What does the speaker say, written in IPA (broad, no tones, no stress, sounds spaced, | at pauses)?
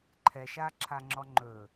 ǃʰ ɛ ʃ a ǁʰ a ŋ͡ǁ ɔ ŋ͡ǃ ɵ